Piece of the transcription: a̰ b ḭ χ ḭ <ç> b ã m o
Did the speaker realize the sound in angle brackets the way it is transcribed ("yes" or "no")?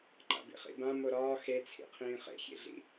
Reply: no